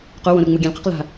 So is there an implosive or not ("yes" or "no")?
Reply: no